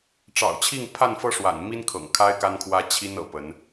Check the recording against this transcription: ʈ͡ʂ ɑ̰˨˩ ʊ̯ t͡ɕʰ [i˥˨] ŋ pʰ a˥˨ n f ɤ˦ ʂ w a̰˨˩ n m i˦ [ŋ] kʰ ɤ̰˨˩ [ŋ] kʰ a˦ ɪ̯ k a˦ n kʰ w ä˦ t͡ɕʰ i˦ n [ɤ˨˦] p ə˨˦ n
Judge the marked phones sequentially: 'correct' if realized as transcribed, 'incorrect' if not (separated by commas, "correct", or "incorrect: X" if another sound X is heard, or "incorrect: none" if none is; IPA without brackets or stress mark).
correct, incorrect: n, correct, incorrect: ɤ̰˨˩